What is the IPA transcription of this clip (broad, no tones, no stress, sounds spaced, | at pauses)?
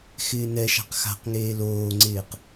x ɪː n ɛ ʃ a̤ q x a̤ q ŋ eː l oː ŋ͡ǀ ɪː q